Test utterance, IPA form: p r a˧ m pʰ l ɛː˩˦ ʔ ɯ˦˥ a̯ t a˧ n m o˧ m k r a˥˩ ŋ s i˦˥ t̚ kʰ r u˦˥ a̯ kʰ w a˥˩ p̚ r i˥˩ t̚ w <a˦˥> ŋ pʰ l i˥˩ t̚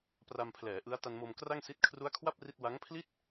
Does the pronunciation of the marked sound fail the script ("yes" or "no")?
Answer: no